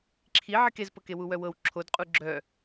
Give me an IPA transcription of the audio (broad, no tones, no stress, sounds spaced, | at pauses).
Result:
ǁʰ i ʕ i k e z p ɤ k e w u w œ w ɤ w ǁʰ o d qʼ u ɡ͡ǁ œ